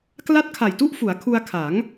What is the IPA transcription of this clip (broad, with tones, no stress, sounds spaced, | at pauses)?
k l a˦˥ t̚ kʰ a˨˩ j t u˥˩ ʔ f u˩˦ a̯ kʰ u˧ a̯ kʰ a˩˦ ŋ